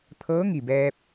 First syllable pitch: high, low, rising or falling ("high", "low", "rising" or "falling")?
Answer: rising